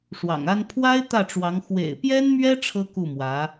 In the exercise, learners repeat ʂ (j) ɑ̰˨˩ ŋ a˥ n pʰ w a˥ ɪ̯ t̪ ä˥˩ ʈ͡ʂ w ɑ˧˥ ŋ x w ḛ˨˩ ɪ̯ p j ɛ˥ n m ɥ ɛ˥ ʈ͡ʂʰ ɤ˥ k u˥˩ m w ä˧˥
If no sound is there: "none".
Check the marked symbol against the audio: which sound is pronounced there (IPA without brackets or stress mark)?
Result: w